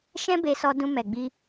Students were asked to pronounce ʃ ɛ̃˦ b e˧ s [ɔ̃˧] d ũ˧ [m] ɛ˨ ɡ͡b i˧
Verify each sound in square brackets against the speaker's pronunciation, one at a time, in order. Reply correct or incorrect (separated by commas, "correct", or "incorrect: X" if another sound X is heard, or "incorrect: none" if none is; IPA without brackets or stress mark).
incorrect: ɔ˧, correct